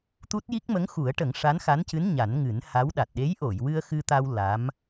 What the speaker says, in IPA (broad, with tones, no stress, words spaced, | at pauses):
t̪u˦˥t̚ji˦˥k̚ mə˧˥ŋxu˨˩˦ə̯ʈə˨˩˦ŋ ʂa˧˥nxa˧˥ncɨ˧˥n ɲa˨˩˦nŋɨ˨˩˦nha˧˥wɗa˨˩t̚ ɗe˧˥jʔo˨˩˨jwɨ˧ə̯ xɨ˧t̪a˧w la˧˥m